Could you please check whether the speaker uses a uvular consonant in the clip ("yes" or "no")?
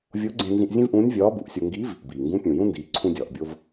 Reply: no